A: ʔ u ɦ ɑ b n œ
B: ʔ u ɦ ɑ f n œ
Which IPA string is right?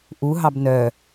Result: A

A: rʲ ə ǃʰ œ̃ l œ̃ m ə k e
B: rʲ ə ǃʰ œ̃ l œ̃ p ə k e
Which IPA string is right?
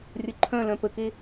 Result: B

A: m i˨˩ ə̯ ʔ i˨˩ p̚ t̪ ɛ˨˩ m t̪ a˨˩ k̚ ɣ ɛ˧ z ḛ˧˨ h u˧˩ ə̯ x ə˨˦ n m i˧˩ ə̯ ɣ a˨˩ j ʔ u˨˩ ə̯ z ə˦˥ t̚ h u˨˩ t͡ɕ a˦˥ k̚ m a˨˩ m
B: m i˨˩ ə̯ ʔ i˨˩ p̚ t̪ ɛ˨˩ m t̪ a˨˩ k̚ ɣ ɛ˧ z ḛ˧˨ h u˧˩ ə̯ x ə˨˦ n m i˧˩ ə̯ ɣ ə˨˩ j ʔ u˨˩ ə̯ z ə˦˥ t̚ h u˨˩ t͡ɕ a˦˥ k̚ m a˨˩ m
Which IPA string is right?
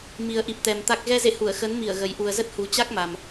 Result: B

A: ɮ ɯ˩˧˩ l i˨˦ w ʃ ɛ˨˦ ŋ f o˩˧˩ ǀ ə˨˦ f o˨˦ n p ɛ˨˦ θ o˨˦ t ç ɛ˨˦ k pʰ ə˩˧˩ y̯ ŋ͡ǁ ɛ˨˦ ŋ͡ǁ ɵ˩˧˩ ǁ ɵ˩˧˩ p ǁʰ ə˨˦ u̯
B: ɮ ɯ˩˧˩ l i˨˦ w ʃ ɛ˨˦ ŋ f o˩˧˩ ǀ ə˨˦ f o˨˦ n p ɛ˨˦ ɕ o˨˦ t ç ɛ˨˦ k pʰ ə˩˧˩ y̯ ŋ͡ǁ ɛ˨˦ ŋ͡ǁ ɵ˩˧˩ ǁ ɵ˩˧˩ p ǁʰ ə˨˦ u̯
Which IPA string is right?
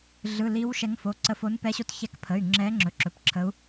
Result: B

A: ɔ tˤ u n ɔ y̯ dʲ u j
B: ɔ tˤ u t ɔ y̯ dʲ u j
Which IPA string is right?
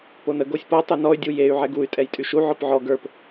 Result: A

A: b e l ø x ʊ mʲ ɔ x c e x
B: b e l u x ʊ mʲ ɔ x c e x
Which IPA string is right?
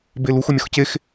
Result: B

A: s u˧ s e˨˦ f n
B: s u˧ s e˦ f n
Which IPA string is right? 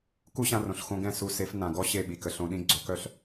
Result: A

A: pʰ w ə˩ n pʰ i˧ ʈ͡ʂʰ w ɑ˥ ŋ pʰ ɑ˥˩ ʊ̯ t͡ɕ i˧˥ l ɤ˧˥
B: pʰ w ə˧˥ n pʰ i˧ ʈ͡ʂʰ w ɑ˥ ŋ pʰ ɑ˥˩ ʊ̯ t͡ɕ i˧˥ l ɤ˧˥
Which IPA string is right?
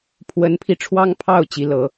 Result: B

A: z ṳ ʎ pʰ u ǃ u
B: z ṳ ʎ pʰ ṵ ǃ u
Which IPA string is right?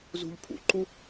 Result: B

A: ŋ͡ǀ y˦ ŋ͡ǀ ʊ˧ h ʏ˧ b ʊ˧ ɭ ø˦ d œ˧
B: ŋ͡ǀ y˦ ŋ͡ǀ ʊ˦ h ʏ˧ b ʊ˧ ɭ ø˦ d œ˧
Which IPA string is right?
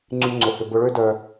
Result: A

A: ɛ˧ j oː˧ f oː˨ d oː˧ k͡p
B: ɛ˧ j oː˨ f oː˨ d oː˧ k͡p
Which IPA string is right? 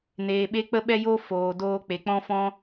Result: A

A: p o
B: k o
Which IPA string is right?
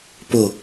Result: A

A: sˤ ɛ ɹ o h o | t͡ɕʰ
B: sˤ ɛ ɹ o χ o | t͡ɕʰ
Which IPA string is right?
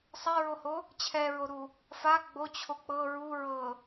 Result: A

